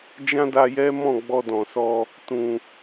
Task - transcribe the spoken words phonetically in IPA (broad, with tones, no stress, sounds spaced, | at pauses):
d͡ʒ ã˦ d a˧ j ɛ˦ m ɔ̃˦˨ ɡ͡b ɔ˧ d ɔ̃˨ s ɔ˧ | t ũ˨